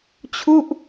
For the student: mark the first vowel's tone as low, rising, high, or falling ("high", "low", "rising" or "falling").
falling